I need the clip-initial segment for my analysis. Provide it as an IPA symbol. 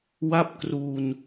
w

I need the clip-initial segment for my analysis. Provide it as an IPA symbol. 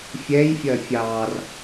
fʲ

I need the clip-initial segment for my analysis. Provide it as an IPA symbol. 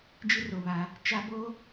d͡ʒ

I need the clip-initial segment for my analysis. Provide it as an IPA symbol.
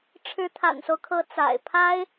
ʈ͡ʂʰ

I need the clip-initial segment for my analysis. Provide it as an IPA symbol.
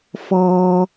f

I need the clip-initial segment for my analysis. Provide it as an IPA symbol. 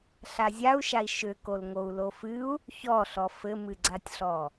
ɬ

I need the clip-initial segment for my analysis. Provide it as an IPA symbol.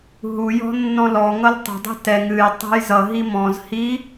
ɦ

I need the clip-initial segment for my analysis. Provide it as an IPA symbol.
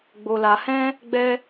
ɡ͡b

